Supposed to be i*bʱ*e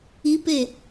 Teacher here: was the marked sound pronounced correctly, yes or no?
no